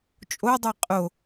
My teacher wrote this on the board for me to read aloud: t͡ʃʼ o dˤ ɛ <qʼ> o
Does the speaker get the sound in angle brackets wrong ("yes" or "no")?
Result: no